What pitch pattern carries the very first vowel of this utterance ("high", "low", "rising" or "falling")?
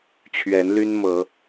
rising